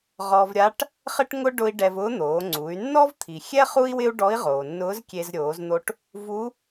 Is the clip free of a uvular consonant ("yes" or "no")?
no